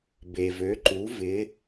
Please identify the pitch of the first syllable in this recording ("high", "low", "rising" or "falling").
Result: low